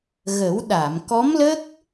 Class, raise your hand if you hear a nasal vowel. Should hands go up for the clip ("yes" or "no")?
no